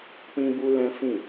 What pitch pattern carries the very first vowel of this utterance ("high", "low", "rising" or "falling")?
high